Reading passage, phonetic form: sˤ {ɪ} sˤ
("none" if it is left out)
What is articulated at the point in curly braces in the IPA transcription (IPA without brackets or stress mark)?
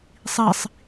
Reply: i